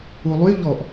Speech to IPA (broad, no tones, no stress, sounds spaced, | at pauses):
u lˠ y ʎ ɔ ʔ